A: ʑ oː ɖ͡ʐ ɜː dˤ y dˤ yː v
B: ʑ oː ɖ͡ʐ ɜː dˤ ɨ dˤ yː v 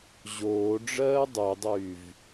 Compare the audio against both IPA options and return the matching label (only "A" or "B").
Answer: A